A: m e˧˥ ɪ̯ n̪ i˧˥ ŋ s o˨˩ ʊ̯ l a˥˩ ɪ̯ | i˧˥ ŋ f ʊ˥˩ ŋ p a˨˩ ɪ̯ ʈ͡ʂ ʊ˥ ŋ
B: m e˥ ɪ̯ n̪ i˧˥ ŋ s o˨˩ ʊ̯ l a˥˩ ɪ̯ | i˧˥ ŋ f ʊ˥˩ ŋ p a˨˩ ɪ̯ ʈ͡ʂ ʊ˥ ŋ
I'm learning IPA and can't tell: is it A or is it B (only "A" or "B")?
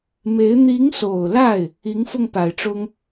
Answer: A